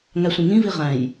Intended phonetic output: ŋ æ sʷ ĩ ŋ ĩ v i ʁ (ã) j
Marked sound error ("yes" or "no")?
yes